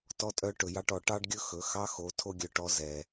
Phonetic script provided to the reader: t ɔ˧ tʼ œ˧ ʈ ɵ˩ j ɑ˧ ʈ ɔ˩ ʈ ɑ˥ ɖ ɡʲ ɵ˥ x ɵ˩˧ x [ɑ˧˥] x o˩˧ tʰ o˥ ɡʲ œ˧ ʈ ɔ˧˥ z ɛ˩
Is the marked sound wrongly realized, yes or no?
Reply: no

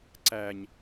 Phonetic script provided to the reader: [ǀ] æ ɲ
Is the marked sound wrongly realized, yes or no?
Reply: no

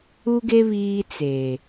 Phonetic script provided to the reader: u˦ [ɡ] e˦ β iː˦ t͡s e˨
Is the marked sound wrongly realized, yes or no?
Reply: no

